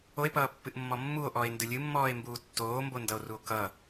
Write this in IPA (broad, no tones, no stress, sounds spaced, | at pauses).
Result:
o e̯ p ʌː pː ɨ ʔ mː ɔ mː u o̯ ʔ ɔ e̯ n d ɨ lʲ ɨ mː ɔː e̯ m b uː tː oː m b o n d ʌ o̯ r u o̯ k ʌ